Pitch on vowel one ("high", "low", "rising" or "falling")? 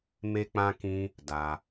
high